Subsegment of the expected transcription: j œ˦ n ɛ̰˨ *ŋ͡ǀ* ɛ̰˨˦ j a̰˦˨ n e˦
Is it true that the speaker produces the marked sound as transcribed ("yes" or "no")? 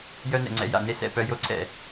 yes